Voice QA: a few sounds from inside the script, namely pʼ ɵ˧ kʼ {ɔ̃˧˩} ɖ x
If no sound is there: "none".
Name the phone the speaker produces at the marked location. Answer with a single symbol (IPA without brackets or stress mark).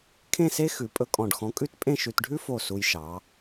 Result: ɔ̃˧˩